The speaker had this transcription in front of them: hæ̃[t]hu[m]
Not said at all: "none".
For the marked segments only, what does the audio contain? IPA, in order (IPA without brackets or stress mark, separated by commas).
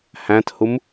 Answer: t, m